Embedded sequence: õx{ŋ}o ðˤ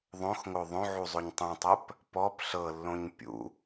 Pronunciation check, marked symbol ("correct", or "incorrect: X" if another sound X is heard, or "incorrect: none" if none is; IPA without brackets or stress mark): correct